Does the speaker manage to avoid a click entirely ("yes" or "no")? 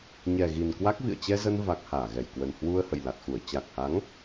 yes